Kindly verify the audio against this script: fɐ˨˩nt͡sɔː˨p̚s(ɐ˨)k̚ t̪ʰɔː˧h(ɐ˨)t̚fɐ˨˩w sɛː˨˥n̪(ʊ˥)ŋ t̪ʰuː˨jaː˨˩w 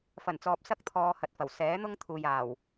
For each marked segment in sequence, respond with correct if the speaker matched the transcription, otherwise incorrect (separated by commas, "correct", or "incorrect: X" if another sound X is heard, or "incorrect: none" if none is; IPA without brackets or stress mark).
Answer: incorrect: ɐ˥, correct, correct